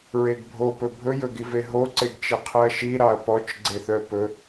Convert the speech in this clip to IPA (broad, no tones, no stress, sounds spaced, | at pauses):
ɹ e ɡ bʱ o p ɵ bʱ ɵ j ɵ ɡ i v e ɦ o ǀ e ɡ t͡ʃ i qʰ ɨ ɐ̯ ʃ i ɾ ɑ ɐ̯ p ɔ t͡ʃ ɡ͡ǀ e θ œ p ɵ